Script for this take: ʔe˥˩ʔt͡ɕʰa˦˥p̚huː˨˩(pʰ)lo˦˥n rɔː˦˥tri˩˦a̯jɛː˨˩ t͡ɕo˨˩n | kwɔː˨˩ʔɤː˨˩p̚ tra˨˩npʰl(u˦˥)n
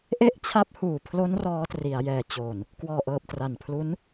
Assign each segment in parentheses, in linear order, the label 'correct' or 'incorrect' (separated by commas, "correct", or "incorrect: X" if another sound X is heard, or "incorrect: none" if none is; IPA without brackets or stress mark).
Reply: correct, correct